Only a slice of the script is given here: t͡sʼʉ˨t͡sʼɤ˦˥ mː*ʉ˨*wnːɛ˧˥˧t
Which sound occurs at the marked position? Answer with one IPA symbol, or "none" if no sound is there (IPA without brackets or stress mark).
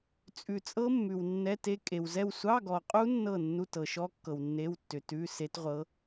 ʉ˨